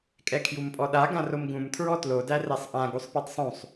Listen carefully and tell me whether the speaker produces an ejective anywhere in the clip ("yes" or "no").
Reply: yes